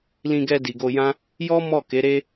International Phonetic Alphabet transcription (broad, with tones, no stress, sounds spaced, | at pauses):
l ĩ˧ ɡ ɛ˧ d i˨ ɡ o˧ j ã˦ | j ɔ˦ m ɔ˦˨ k e˨˦ ɾ e˦